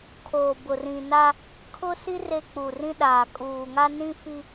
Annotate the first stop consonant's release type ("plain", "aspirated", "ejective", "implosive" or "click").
aspirated